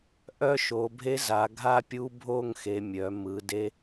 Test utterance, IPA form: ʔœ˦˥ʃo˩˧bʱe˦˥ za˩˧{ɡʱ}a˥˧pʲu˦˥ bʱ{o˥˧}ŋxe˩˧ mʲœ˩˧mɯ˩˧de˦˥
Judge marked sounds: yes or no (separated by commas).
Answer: yes, yes